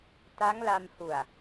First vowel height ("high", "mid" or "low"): low